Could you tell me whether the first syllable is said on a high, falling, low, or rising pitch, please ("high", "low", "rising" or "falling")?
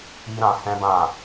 high